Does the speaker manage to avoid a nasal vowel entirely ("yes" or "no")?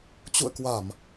yes